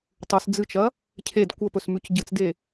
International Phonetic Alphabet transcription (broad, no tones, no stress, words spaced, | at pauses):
tˤɵs d͡zɨt͡ʃɐ | cʰed kʷɐpɵsmʉc ɟɨt͡sde